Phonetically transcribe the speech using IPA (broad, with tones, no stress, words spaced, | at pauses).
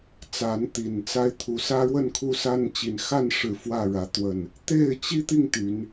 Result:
t͡sa˨˦nt̪i˨˩nt͡sa˦ɪ̯ t̪ʰu˨˩sä˦ɻwə˥˨n kʰu˦sa˦nt͡ɕi˨˦n xa˥˨nʂɻ̩˨˩ fwä˥˨ɻä˨˦ t̪wə˨˩n | t̪e˥˨ɪ̯t͡ɕi˦t̪i˥˨ŋ t̪y˨˦n